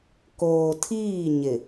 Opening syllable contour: low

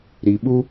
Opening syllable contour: low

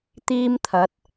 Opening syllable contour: high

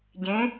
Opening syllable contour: rising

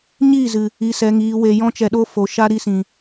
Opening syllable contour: falling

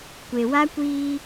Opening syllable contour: low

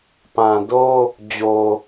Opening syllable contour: low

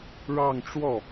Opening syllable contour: falling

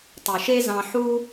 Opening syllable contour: low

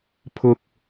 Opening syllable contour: high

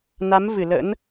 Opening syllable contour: rising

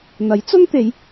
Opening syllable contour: rising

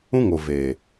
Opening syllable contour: high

